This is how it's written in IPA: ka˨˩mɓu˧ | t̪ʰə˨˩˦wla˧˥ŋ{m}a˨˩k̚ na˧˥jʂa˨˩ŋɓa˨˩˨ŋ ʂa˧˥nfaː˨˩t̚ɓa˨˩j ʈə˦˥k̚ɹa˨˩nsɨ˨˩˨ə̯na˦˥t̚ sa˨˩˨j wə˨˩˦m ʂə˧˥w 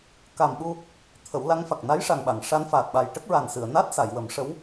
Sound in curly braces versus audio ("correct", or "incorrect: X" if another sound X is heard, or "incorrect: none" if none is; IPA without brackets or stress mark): incorrect: f